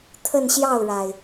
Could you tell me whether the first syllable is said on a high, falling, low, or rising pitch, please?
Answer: falling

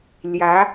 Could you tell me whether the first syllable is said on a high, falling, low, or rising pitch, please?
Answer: rising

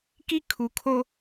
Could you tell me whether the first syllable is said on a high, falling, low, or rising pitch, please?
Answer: high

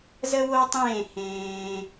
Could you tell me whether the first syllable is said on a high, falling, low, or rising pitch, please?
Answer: high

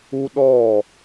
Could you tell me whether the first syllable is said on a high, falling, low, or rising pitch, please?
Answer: high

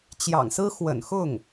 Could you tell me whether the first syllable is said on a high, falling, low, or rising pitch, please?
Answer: low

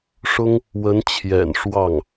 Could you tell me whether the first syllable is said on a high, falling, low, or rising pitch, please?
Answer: high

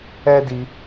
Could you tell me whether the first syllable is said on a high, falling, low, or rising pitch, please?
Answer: high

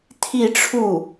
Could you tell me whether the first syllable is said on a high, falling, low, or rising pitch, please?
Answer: falling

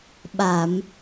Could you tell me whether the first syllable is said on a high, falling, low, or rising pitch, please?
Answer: low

